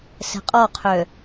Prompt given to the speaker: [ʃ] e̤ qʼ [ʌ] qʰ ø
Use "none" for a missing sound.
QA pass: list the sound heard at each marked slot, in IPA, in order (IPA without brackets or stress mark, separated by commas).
s, ɔ